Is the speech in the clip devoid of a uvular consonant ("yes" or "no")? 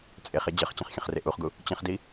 no